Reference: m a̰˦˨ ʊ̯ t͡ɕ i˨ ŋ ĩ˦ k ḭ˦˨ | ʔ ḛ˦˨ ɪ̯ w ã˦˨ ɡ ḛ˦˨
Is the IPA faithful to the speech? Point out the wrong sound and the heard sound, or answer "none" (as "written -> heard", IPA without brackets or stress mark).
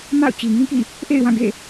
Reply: none